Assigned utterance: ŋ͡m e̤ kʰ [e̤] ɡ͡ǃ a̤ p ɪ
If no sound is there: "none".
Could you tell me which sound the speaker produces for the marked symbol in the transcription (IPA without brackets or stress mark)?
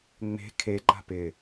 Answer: e